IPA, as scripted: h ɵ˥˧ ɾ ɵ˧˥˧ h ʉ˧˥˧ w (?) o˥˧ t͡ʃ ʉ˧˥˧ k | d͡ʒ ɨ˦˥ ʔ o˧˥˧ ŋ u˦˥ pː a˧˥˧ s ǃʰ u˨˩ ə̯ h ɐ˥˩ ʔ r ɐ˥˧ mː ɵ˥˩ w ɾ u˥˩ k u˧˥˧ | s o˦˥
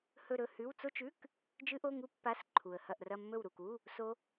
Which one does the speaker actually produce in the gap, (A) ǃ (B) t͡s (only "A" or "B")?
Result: B